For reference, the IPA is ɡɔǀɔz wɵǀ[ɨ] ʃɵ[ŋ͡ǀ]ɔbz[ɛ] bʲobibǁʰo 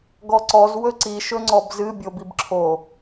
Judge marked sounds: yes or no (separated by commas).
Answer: no, yes, no